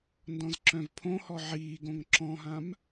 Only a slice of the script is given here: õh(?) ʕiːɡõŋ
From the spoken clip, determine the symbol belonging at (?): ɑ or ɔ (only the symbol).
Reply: ɔ